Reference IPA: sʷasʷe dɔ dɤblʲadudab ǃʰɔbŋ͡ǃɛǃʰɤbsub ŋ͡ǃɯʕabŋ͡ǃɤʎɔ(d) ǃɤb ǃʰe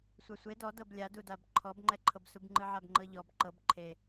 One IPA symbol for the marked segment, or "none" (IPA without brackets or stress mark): b